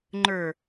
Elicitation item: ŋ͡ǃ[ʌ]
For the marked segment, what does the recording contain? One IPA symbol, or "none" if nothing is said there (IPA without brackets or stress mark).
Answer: ə˞